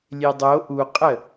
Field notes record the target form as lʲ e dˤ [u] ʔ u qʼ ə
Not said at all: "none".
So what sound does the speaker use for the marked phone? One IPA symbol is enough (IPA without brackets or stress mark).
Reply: o